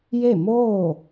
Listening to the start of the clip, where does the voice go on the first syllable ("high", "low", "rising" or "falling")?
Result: falling